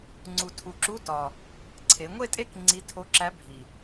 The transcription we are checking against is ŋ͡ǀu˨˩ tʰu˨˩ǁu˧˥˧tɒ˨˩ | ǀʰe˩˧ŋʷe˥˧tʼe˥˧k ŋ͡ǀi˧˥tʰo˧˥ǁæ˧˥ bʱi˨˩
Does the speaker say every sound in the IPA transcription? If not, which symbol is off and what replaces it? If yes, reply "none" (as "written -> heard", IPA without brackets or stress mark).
none